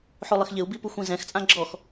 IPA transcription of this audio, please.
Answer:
ħ o lˠ ɪ x ʎ ɪ u̯ b i p u xʷ ĩ z ɛ̃ x t͡sʼ ã ɡ͡ǁ ɔ x

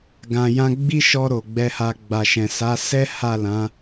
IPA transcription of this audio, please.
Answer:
ɡ ã˨ j ã˧ ɡ͡b i˦ ʃ ɔ˧ ɾ o˨ ɡ͡b ɛ˧ h a˧ ɡ͡b a˨ ʃ ɛ̃˨ s a˨˦ s ɛ˦ h a˦˨ l ã˨˦

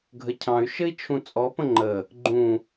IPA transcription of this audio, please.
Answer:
ɡʱ ə cʰ ɑ̃ y̯ ʃ ɘ i̯ t͡ʃʰ ũ t͡sʼ ɔ p ə̃ ŋ͡ǃ ə | ɡ͡ǃ ũ

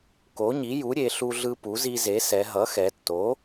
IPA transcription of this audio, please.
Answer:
k o˩˥ ɲ i˩˥ j u˩˥ ɾʲ e˩˧ ɬ u˦ ɮ ɯ˦ p u˩˥ z i˦ z e˩˥ s ɛ˩˧ ɦ ʌ˩˥ x ɛ˩˧ tː o˩˥

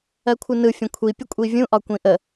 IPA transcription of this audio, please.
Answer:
ɜ kʷʰ ɯ n ɯ fʲ ə̃ kʷʰ i pʲ ə kʷʼ i vʲ ũ ʔ ɒ kʷ ĩ ʔ ə

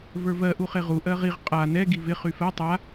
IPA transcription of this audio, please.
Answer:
v ə˞ v ɜ ʔ u χ e ʁ u ʔ ɜ ʁ i ʁ qʼ a n ɛ ɡ i v ɪ χ y f ɜ tˤ a

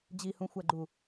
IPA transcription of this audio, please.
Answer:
d͡ʑ i h ũ xʷ æ ɡ͡ǃ u

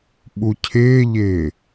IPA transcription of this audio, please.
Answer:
ɓ u cʰ ɪː ʎ ɪː

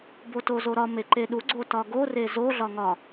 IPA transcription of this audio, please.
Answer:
b o t o z o ɾ ɒ m e ǃ e ɗ u ɡ͡ǀ o t ɒ ɡ o r e z o ɮ ɒ ŋ ɒ

